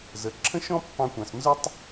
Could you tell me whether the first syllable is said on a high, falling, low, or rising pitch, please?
rising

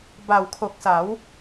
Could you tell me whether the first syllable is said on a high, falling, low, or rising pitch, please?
low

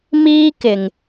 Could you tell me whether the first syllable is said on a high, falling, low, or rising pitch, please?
high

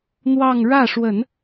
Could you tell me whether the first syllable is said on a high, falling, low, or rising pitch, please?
falling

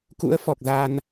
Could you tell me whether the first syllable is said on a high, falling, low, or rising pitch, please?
rising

